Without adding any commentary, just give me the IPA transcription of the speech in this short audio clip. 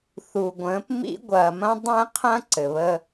θ u˨ ɡʷ ə̃ː˨˦ p m ḭ˦ ɡʷ ɐː˨ m ɐ̃˦ dˤ ɛ̃˦ qʰ ɐ̃˦ ǀ ɘ˨ β ə˦

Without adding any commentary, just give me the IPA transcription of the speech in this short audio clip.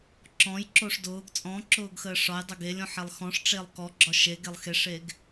ǁ ɔ̃ j ǁ o ʂ d ʊː ɡ t͡sʼ ɔ̃ ǁ ʊː ɡ x əː ʂ ɒ j dˤ ə ɡ e lʲ ɔ̃ ħ ɛ lˠ x ɔ̃ ʂ ʈ͡ʂ e lˠ k ɔ ɡ͡ǁ ɒ ʃ e ɡ e lˠ x e ʂ eː ɡ

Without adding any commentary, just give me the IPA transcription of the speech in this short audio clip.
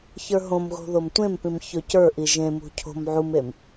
ç ə˞ ɦ õ m ɣ o̤ ð o m tʷ ẽ m p ĩ m ç ɵ c ə˞ ʔ i ʒ ẽ m ṳ cʰ o̤ m ʕ u m e m

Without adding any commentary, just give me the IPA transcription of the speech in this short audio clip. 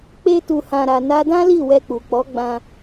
k͡p e˧ t u˨ h ã˨ ɾ a˨ n a˧ d ã˦ l i˦˨ w ɛ˧ k͡p u˨ k͡p ɔ˨˦ ɡ͡b ã˧

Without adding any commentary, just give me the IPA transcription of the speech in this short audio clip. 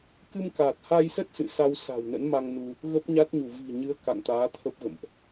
k ɨ˧ m k a˨˩ t̚ h a˧ j s ə˦˥ t̚ s ɨ̰˧˨ s a˧ w s a̤˨˩ w n ə̰˧˥ n m a˧ ŋ n u˧ | ɣ ə˦˥ p̚ ɲ a˦˥ t̚ ɲ u˧˩ v i̤˨˩ ɲ ɨ˨˦ ə̯ k a̰˧˨ ŋ t̪ aː˨˦ t̪ʰ ə˦˥ p̚ ɣ ə̰˧˨ m ʔ

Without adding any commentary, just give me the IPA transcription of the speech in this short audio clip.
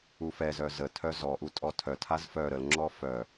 u f ɛ z œ z ə tʰ œ z ɔ ʔ u tʼ ɔ tʰ œ tʰ a z f œ ɾ ə l ŋ͡ǁ ɔ f œ

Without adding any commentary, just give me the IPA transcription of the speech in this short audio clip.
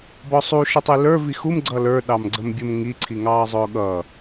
b ɔ sˤ u ʃ ə tˤ i l ə˞ v i x u m ɡ͡ǀ ʌ l ə˞ ɗ ɑ m ɡ͡ǀ ə m bʲ ʊ m ŋ i ǀʰ i ŋ ɑː zˤ ʊː ɠ ʌ

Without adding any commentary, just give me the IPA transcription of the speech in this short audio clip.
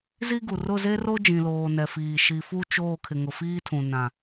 z i˦ ɡ u˨ r ʊ˦˨ z e˦ r o˦ d͡ʒ ĩ˨ l oː˨ n ɛ˨ f iː˨ ʃ i˨ f u˦ t͡ʃ oː˦˨ kʰ ɪ˨ ŋ ʊ˨ f iː˦ tʰ ũ˨ n ã˨

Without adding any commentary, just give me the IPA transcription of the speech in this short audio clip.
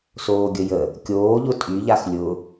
s oː ɡʲ ə j ə | kʲ oː ʎ ʊ tʼ y ʎ a x lʲ ʊ

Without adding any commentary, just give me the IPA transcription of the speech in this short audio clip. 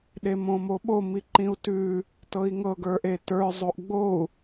ɗ e m õ m o ɓ o m i ǃ ĩ u̯ t ʉ | t ɤ i̯ ŋ ɤ ɡ ə˞ ʔ e t ə˞ zˤ o ʔ ɡ͡b o u̯

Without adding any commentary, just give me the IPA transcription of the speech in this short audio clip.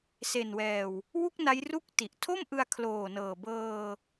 s e˨˩ n w ɛː˨˩ w | w u˥˩ k̚ n a˦˥ j r u˥˩ k̚ t i˨˩ ʔ tʰ o˥˩ m ʔ ɯ˧ a̯ kʰ l oː˨˩ n ɤː˨˩ b ɤː˧

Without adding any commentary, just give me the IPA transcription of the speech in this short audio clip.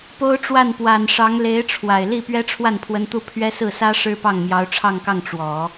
p o˥ ʊ̯ ʈ͡ʂ w a˥˩ n p w a˨˩ n ʂ ɑ˧˥ ŋ l e˧˥ ɪ̯ ʈ͡ʂʰ w a˨˩ ɪ̯ l i˥˩ p ɥ ɛ˥ ʈ͡ʂʰ w a˥˩ n pʰ w ə˧˥ n t̪ u˥˩ pʰ ɥ ɛ˥ s ɹ̩˥˩ s ä˥ ʂ ɻ̩˥ p ɑ˥˩ ŋ m j ɑ˧˥ ʊ̯ ʈ͡ʂʰ ɑ˥˧ ŋ k ɑ˥˩ ŋ ʈ͡ʂ w ɔ˨˩˦

